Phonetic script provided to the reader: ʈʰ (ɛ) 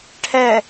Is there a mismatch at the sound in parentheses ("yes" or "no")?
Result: no